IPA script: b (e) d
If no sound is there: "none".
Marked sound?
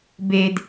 e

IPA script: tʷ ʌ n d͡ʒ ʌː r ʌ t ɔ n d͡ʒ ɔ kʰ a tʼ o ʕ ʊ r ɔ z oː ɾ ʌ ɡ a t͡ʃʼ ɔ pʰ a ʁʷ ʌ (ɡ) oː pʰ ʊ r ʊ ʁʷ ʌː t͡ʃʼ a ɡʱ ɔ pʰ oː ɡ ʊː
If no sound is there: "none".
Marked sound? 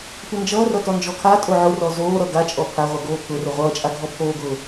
ɡ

